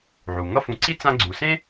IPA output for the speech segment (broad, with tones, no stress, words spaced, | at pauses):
ʕu˩ ŋʌ˦ fũ˨ǀi˦ t͡sã˦ɡ͡ǀu˨ sẽ˥